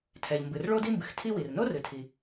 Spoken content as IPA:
tʰ ɛ˩ ʎ m b ɨ˩ r ɭ o˥ d i˥ m b ɨ˩ x tʰ i˥ w i˩ r n o˥ r ɨ˩ tʰ i˩

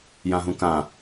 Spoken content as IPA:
j ã ɦ ũ k ã

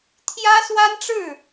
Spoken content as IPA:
t̪ʰ j ä˥ s w a˥ n ʈ͡ʂ ɻ̩˥˩

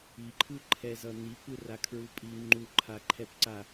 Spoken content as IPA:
i ǃʰ ɯ ǃʰ ɛ z ʌ n̪ i p ɯ r a kʰ ɹ u pʼ i ŋ͡ǃ u ǃʰ a ǃʰ ɛ p ǀ a

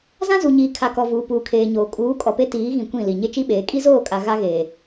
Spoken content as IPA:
z ã˦ z u˨ ɲ iː˨ kʰ a˨ k ɔ˨ v uː˨ p uː˨ kʰ eː˨ ɲ oː˨ kʼ uː˨˦ kʼ ɔ˨ p e˦ t iː˨˦ ɣ ĩ˨ kʷ ĩ˦˨ l i˨ ɲ e˦ t͡ʃ i˦ ɓ eː˨˦ kʼ i˦ z oː˦˨ kʼ a˨ ɣ a˦ ɣ eː˨

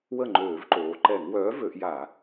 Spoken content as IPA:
w ə˥˩ ŋ͡ǃ øː˧˩˧ v ǃ oː˩˧ ǃ ɛ˧˩˧ ŋ w œː˨˥ v ø˩˧ ʔ j a˧˩˧

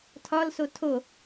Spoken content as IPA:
tʰ ɒ l s o tʰ o

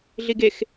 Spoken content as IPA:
ɮ i ɡ e x

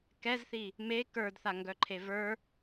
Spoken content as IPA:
k ɛ z θ i | m e k ə˞ d θ a ŋ ɡ œ ǃʰ e v ə˞

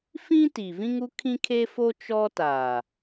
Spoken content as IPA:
f ĩ˦ t i˨ v ĩ˦ ŋ u˦ kʰ ĩ˦ kʰ e˦ f o˦ t͡ʃ ɔ˦ t aː˨

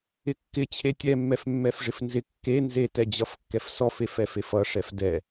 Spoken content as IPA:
ɪ kː ɪ t͡ɕʰ e tʲ ɛ mː ɛ f mː ɛ f ʐ ɪ f n z ɪ kː e n z e t ɛ d͡ʑ ʌ f kː ɛ f s ɔ f e f ɛ f e f ʌ ʂ ɛ f d ɛ

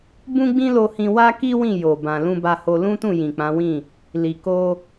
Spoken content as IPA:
b ũ˦ ɡ͡b ĩ˦ l o˧ h ĩ˧ w a˦ k i˦ w ĩ˦˨ j o˨ b ã˨ l ũ˧ b a˧ h o˧ l ũ˦ t ũ˦˨ j ĩ˨ k͡p ã˨˦ w ĩ˦˨ | l i˨ k o˧

